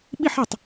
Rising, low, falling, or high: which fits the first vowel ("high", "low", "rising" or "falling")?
falling